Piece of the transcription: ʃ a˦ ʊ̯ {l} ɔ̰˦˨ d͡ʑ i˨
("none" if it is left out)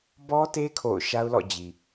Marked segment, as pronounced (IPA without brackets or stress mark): l